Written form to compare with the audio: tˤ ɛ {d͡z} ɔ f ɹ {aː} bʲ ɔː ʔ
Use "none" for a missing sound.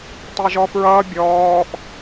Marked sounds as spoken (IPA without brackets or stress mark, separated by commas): ʒ, ʌː